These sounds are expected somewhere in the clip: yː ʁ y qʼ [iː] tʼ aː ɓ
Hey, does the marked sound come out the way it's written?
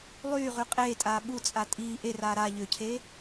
no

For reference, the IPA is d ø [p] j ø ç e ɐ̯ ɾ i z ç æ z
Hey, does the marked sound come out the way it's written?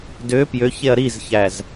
yes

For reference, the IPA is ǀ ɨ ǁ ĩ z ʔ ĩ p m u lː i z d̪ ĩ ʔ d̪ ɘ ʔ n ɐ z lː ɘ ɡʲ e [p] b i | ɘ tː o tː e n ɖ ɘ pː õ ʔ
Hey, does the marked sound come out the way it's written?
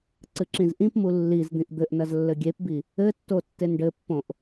yes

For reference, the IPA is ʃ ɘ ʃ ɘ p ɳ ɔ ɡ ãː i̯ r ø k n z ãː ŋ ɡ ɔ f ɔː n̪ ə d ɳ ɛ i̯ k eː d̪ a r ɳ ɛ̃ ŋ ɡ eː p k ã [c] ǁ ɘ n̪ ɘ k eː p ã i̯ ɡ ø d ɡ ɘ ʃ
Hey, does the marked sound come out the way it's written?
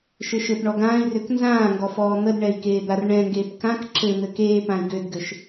no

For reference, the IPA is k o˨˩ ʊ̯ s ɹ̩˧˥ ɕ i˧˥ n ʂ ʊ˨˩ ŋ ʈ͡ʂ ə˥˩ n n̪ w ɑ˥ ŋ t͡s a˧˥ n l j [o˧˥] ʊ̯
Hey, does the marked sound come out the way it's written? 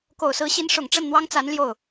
no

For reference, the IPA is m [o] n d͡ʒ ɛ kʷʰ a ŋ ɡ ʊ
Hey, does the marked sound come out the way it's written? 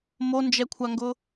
yes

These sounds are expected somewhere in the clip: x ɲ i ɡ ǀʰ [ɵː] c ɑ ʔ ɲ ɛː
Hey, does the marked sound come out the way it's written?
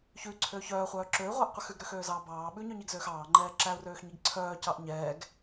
no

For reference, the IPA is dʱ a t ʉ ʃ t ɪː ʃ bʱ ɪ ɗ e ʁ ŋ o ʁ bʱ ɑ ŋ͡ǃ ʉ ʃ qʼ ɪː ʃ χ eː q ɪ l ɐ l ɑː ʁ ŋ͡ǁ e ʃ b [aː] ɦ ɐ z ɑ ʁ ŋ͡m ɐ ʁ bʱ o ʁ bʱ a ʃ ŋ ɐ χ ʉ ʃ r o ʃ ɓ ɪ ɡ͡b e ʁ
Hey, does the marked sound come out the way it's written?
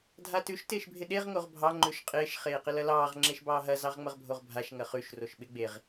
no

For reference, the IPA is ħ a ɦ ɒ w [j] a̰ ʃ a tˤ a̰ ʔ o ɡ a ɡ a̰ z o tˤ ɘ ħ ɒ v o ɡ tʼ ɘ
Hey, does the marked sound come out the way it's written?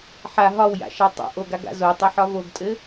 yes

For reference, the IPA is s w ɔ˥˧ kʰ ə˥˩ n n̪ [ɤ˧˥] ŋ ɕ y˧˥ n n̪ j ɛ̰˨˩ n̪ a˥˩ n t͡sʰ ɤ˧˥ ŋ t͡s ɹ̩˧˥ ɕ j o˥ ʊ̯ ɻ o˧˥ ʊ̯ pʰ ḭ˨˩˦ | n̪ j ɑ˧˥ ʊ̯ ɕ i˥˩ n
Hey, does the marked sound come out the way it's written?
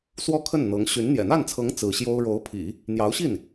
yes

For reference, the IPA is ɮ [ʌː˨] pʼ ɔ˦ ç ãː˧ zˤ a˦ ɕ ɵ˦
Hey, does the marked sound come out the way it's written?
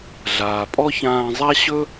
no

